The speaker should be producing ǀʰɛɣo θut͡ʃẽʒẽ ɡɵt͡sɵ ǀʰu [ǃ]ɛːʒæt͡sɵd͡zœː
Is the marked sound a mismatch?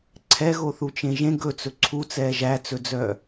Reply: yes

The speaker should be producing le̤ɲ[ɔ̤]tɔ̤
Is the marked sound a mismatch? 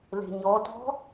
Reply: yes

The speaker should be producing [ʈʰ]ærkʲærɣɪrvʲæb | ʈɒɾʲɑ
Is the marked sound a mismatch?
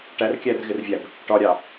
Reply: yes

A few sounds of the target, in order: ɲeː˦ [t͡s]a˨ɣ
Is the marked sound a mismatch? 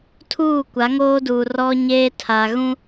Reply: yes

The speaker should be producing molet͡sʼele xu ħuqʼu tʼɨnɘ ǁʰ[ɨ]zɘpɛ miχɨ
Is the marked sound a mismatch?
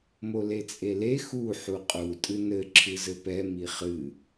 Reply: no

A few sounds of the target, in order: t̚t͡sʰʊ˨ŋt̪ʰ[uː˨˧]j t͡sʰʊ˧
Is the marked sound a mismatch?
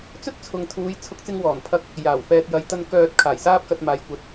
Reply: no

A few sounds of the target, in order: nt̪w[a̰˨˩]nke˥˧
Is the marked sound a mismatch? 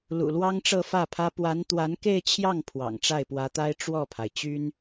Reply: yes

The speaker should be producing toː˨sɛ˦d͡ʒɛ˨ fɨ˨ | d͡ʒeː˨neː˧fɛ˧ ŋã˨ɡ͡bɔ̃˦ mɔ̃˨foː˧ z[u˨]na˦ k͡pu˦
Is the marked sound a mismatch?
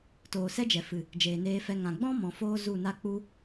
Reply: yes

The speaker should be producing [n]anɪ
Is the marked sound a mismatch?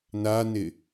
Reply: no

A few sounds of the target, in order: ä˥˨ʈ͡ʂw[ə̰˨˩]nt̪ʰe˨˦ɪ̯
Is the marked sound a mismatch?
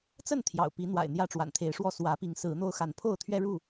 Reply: yes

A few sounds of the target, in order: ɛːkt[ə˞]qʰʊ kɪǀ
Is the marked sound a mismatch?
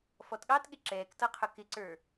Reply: yes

